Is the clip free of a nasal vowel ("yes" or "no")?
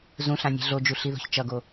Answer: no